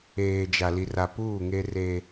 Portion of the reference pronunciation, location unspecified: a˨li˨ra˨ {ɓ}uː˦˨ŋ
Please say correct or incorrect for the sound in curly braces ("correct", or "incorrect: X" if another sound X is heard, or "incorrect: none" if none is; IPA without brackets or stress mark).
incorrect: p